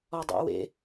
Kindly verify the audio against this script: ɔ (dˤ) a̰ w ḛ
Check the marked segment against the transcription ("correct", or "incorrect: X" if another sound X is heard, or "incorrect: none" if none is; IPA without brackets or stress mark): correct